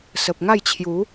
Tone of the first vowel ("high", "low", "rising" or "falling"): low